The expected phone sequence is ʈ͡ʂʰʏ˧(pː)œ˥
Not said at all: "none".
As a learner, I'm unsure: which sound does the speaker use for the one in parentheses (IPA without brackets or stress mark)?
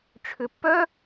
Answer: pː